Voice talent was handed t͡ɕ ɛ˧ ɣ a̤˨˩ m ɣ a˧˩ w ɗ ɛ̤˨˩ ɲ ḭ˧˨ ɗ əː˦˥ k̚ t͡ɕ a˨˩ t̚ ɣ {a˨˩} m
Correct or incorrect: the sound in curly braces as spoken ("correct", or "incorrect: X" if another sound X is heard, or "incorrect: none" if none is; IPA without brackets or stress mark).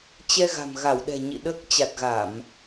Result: incorrect: a˧˩˨